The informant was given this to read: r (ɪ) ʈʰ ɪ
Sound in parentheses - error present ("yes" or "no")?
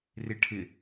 no